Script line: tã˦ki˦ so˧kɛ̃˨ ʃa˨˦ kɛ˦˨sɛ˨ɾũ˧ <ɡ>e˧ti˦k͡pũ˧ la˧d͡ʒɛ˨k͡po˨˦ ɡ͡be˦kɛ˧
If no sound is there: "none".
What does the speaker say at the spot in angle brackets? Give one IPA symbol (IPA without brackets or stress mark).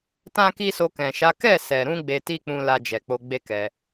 ɡ͡b